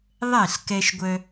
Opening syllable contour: falling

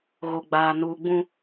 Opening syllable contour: low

